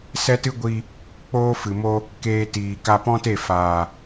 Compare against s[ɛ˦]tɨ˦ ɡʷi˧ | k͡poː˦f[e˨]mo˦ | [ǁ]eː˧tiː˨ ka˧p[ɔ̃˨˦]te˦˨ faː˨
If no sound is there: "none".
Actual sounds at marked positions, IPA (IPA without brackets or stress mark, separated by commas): ɛ˦, ɨ˨, k, ɔ̃˦